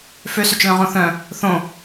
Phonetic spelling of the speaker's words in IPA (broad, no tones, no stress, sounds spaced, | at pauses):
f ø s ø t͡ʃ l œ̃ ʁ õ θ œ̃ | θ õ